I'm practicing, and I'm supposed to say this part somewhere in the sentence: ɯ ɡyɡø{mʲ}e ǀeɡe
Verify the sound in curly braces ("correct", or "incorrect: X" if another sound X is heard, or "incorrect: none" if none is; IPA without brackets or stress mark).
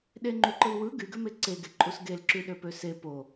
incorrect: m